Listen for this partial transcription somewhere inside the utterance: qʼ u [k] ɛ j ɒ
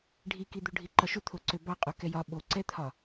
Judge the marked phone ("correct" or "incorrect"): correct